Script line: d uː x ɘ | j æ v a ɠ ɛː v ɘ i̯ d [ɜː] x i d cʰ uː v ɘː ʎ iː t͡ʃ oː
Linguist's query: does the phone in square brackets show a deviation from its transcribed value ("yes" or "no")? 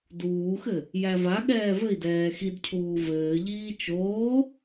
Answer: yes